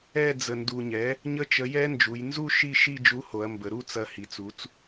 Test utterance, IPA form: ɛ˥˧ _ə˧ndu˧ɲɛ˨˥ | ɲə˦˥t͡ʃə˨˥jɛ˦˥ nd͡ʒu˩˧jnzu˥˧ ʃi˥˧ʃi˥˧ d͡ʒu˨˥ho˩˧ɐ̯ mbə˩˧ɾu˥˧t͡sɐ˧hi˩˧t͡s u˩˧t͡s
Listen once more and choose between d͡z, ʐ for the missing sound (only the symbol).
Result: d͡z